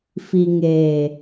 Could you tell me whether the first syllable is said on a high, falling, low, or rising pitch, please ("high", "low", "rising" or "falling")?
low